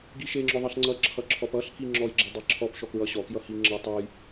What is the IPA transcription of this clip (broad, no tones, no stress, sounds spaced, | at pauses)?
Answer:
ɡ i ʃ e ŋ͡ǁ ɔ ðˤ ʌ ɬ ŋ͡ǀ ʌ ǁʰ ʌ ǁʰ ɔ p ʌ ɬ k i ŋ͡ǁ ɔ j ɡ͡ǁ e dˤ i ǁʰ ɔ p ʃ ɔ k ɹ ʌ ɕ ɔ k j ʌ h i ŋ͡ǁ ʌ tˤ ʌ j